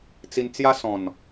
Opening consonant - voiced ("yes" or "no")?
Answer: no